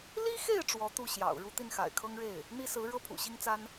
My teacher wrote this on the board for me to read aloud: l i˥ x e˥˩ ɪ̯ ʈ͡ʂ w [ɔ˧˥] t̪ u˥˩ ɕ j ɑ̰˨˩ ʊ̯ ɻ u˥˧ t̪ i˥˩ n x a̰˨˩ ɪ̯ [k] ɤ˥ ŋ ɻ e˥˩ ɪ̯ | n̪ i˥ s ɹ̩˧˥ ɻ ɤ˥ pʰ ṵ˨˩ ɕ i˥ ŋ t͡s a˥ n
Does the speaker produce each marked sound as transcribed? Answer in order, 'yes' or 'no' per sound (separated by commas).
yes, no